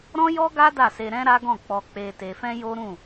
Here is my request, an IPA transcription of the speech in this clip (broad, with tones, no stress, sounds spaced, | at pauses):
ɾ ɔ̃˦ j ɔ˦ ɡ a˦ d a˦˨ s e˧ ɾ ɛ̃˦ ɾ a˦ ɡ ɔ̃˦˨ k͡p ɔ˧ k͡p e˧ t e˧ f ɛ̃˦ j o˦ ɾ ũ˦˨